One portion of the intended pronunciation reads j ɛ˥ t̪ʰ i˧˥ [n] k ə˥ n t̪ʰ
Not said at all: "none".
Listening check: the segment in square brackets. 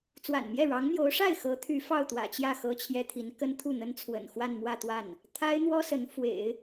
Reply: n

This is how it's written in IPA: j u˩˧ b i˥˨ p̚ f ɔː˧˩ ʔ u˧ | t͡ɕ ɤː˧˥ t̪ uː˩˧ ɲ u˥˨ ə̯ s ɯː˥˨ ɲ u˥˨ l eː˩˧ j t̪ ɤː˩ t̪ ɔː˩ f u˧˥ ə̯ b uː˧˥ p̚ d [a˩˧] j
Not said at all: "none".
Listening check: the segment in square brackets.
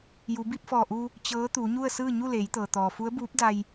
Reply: a˧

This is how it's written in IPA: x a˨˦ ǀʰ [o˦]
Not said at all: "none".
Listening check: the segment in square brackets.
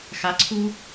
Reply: u˦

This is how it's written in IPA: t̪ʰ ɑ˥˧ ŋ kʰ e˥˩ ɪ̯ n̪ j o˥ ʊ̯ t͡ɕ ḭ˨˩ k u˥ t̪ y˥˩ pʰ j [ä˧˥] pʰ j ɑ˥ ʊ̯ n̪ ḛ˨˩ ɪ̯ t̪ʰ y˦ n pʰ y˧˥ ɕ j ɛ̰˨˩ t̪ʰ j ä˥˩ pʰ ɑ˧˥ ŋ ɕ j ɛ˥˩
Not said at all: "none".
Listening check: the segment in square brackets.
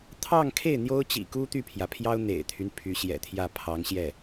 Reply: ä˩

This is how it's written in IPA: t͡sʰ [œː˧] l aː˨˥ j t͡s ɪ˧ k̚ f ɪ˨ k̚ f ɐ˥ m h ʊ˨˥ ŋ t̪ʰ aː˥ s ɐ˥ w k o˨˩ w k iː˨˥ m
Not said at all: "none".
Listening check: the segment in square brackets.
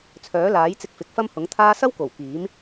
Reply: œː˨˥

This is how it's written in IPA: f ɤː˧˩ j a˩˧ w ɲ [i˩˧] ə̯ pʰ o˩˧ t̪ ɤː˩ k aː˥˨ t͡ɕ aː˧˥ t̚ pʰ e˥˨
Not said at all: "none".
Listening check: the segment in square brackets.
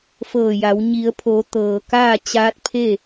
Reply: i˩˧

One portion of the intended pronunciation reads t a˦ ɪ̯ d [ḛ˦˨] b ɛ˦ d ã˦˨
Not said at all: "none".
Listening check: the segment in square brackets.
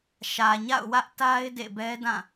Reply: ḛ˦˨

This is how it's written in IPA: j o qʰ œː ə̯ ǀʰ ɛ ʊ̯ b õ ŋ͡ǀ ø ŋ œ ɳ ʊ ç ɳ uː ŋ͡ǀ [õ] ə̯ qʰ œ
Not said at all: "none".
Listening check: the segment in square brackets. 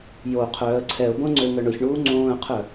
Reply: õː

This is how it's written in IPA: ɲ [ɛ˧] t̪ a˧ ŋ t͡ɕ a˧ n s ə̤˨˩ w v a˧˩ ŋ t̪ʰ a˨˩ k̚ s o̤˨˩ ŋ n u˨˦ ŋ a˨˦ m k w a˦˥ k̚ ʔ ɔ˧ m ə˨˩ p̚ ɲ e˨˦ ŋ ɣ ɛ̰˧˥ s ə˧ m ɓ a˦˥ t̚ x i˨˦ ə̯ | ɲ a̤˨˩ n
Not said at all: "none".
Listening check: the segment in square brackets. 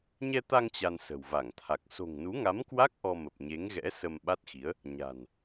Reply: ɛ˧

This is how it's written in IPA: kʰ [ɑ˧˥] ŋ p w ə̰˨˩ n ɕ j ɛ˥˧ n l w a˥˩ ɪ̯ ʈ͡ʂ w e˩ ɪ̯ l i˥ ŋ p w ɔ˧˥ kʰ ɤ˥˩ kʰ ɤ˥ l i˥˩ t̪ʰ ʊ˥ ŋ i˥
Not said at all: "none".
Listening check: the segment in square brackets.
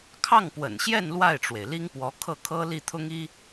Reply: ɑ˥˩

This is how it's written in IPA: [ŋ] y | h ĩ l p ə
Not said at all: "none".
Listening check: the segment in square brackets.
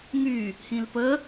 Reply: ŋ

